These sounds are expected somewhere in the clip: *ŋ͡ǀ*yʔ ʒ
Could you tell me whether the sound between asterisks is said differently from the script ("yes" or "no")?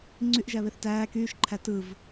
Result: no